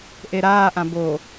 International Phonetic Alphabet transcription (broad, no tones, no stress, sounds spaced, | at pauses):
ʔ e ɾ aː ʔ ã b o